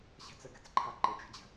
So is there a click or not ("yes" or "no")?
yes